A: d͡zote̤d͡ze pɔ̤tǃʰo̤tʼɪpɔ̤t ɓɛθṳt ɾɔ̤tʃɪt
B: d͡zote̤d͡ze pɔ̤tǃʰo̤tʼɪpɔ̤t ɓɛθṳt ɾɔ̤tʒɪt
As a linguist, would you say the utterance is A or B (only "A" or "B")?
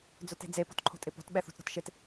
A